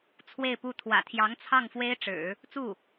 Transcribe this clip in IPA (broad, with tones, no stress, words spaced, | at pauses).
t͡sʰwe˥˧ɪ̯pu˥˩ t̪ʰwä̰˨˩t̪ʰjɑ˧˥ŋ t͡sʰɑ˥˩ŋfwe˥ɪ̯ʈ͡ʂɻ̩˨˩˦ | t͡su˥˩